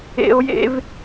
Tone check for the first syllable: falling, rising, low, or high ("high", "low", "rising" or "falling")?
high